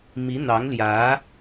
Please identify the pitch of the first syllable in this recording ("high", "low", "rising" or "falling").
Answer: rising